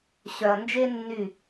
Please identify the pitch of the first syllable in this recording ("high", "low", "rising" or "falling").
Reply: low